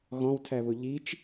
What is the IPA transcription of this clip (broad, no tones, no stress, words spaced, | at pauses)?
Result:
ɣɔ̃wtʰæβʊ ʎit͡ʃ